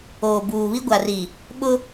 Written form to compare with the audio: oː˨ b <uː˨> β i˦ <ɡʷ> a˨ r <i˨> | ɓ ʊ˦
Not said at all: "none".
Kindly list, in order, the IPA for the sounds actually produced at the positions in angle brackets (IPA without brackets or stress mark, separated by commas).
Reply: uː˨, ɡʷ, i˨